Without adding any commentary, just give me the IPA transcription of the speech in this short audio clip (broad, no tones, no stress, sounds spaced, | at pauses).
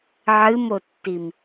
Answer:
ʕ ɨ m o tː i m